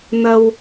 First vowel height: low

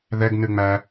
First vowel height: mid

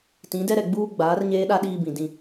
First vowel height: high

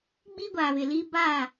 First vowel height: high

